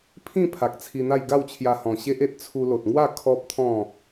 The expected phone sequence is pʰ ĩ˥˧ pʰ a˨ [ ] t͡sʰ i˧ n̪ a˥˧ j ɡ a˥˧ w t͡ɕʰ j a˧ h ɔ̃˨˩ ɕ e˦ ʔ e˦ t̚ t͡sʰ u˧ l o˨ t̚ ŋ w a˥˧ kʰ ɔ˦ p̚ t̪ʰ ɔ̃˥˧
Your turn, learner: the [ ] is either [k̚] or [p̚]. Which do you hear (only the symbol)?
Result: k̚